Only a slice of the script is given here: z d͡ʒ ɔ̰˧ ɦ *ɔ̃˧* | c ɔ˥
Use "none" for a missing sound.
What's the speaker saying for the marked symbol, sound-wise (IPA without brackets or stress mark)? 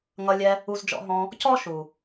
ɔ̃˧